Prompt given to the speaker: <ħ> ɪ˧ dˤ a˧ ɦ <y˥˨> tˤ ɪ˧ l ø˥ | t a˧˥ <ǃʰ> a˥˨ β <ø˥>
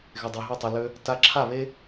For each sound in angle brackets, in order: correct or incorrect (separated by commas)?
incorrect, correct, incorrect, incorrect